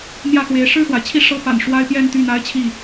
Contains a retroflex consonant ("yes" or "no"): yes